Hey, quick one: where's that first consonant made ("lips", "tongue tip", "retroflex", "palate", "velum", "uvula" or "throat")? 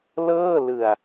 tongue tip